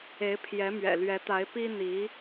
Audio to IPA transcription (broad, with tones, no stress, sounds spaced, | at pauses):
e˧˥ ɪ̯ pʰ j ɛ˧˥ m ɥ ɛ̰˨˩ l ɥ ɛ˧˥ t̪ a˧˥ ɪ̯ p i˥ n̪ i˧˥